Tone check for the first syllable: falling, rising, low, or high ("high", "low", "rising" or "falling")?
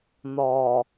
low